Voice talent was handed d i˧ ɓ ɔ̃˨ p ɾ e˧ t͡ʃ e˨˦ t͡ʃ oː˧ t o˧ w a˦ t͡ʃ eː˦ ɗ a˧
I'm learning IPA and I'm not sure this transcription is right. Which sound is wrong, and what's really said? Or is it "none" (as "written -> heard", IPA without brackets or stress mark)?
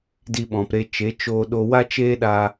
t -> ɗ